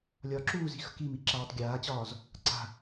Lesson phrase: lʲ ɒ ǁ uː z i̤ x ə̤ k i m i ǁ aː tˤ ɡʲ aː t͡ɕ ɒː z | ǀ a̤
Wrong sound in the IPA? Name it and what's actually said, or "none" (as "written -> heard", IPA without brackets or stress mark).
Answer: none